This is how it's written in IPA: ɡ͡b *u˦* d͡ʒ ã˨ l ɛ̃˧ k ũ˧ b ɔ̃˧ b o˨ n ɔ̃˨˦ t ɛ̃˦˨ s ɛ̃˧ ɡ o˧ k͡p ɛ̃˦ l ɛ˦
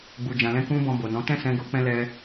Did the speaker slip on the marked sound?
yes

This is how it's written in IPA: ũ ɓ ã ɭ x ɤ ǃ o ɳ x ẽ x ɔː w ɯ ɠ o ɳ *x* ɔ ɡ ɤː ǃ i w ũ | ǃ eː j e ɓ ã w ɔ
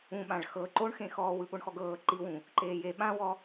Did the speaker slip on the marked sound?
no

